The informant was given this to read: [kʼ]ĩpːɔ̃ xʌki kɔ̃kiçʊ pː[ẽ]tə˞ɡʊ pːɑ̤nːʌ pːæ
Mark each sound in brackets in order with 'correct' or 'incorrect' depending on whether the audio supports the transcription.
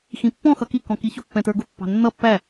incorrect: x, incorrect: ɛ̃

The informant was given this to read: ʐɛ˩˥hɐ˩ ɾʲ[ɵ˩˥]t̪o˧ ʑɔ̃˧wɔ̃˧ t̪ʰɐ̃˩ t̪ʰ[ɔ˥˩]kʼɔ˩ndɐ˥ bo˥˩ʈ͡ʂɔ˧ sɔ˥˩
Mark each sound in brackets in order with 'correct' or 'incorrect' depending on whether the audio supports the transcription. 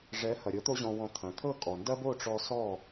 incorrect: ɤ˩˥, incorrect: ɤ˥˩

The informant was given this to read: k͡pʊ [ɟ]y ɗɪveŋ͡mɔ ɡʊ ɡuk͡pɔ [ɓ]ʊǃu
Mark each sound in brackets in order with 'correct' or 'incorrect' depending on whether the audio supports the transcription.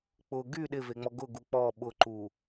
incorrect: ɡ, correct

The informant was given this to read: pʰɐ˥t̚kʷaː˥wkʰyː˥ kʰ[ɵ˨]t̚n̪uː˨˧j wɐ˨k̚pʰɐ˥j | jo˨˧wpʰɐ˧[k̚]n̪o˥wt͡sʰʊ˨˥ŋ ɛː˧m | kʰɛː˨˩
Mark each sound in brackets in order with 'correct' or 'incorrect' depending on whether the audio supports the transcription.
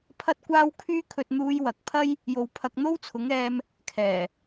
correct, correct

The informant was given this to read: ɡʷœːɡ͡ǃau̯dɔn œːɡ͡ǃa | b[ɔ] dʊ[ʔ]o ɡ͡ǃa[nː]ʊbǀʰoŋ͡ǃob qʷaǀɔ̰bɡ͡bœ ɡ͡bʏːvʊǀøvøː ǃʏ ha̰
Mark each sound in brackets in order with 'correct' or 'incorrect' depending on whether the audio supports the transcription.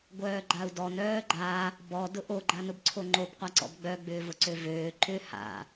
correct, correct, incorrect: n

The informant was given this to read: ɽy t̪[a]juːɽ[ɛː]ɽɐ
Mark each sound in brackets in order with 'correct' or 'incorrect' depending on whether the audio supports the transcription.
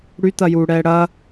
incorrect: ɐ, correct

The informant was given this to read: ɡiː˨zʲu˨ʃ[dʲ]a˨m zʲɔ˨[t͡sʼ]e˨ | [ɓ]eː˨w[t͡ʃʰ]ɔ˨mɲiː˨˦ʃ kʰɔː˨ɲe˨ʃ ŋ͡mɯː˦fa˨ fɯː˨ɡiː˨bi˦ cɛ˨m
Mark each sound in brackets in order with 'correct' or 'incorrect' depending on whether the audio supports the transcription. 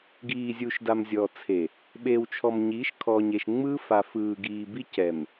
incorrect: d, incorrect: t͡sʰ, correct, correct

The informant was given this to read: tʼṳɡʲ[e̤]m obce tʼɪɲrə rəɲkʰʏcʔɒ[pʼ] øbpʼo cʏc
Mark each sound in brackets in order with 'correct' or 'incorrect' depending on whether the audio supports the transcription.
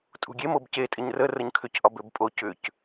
incorrect: e, incorrect: b

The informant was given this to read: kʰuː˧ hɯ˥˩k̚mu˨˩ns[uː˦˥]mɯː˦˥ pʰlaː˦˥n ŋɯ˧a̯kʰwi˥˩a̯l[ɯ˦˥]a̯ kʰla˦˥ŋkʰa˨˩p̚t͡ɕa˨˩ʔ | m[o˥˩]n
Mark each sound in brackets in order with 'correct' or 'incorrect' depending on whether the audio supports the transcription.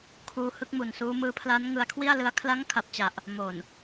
correct, correct, incorrect: o˨˩

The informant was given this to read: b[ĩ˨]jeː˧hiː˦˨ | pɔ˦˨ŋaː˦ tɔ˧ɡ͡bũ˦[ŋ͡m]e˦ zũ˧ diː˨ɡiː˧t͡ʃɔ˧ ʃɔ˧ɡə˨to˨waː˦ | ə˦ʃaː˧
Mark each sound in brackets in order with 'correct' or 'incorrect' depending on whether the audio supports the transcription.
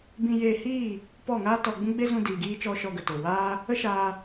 incorrect: ĩ˧, incorrect: ɡ͡b

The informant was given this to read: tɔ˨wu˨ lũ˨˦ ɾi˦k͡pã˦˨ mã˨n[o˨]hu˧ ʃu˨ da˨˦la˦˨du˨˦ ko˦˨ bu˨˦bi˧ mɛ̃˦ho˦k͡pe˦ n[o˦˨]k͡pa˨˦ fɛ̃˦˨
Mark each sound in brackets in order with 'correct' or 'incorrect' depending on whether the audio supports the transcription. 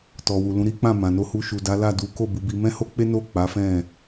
incorrect: o˧, correct

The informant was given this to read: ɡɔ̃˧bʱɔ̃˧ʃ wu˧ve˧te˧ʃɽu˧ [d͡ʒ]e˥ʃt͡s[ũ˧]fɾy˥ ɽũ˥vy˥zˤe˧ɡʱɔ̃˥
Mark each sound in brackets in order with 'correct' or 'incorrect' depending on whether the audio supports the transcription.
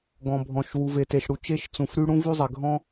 incorrect: t͡ʃ, correct

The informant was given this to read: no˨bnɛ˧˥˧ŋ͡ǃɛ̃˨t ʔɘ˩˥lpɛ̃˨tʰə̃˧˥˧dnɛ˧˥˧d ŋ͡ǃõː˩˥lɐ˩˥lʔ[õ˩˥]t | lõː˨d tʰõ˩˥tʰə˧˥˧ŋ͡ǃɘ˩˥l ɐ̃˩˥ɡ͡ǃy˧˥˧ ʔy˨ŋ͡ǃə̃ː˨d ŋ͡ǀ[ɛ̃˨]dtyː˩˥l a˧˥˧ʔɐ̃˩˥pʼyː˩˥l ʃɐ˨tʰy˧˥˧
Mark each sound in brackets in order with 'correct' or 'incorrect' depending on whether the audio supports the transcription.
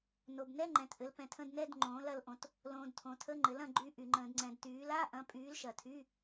correct, correct

